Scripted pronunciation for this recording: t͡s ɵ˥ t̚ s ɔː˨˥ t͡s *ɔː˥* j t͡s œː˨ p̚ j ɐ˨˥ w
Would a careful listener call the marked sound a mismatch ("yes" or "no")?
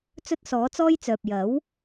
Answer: no